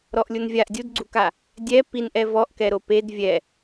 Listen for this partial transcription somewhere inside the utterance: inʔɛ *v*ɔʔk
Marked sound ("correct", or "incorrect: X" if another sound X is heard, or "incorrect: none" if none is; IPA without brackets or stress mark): correct